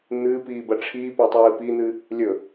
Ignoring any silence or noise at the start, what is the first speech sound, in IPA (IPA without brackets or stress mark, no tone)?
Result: n̪